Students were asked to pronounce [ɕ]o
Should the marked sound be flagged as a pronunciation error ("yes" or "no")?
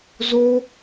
yes